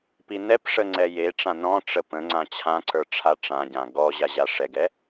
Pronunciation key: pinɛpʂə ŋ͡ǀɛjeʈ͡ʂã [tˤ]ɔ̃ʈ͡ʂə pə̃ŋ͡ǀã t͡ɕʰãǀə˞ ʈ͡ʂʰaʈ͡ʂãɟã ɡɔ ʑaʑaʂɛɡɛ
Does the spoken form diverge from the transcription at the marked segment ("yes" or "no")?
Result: yes